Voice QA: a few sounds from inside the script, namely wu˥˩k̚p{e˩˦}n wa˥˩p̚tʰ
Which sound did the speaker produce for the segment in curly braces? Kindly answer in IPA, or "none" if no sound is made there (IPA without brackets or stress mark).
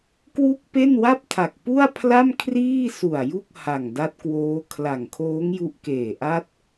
e˥˩